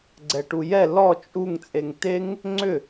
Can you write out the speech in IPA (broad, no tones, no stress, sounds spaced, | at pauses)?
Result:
ɡ͡ǀ ɛ ʈ u j ɛ l ɔ t͡ʃʼ u ŋ t͡sʼ e ŋ t e ŋ | ŋ͡ǀ ʏ